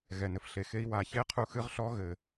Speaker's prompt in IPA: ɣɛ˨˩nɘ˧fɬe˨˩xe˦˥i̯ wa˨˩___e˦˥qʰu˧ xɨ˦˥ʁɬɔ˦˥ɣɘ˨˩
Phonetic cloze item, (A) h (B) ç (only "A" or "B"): B